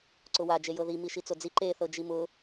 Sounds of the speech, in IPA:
ǀ ʊ w a d͡ʒ e j ɤ ð i m i ʃ i t͡s o d͡z i ǃ e θ ɤ d͡ʒ i m ʊ

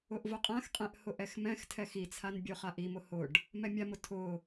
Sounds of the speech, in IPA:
ʊ ʔ v ʊ qʼ ã x qʼ ɛ̃ ʔ h ʊ ʔ ɛ x m ɛ̃ x tʰ ɛ x i t͡sʰ a n bʲ o χ a ʔ i m ʊ h ʊ ɖ | m ɛ mʲ a m ʊ tʰ ʊ

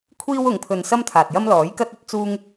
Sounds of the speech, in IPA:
kʷʰ iː˥ w ʊ˨˧ ŋ pʰ ɵ˧ n s ɐ˥ m t̪ʰ aː˨ t̚ j ɐ˥ m l ɔː˨˥ j k ɐ˥ t̚ ɵ˨˥ t̚ t͡s uː˥ ŋ

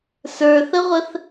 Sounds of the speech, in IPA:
s ə˞ θ ə ʁʷ ə θ

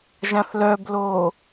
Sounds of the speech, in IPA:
ʒ ã θ l œ b l oː

